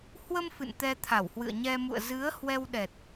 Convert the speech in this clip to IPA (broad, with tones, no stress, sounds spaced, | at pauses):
h w ə˧ m f ɨ̰˧˨ n t̪ ɛ˧ t̪ʰ a˧˩ w h w ɨ̰˧˨ ə̯ ɲ ɛ˧ m ṵ˧˨ ə̯ z ɨ˨˦ ə̯ h w ɛ˧ w ɗ ɛ˨˩ t̚